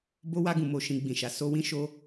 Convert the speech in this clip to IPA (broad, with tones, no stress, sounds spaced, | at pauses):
b o˧ w a˧ ɡ ũ˨ m o˨ ʃ ĩ˨ ɡ͡b ĩ˨ ʃ a˨ s o˧ w ĩ˦ ʃ o˦